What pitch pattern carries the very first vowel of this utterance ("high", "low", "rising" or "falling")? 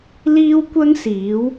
high